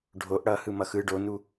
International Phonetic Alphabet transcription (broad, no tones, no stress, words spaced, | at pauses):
ɖʱoʔ ɽʌhɯ mʌxɯ ɖonu